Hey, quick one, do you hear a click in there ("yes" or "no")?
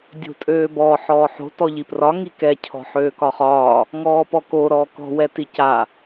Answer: no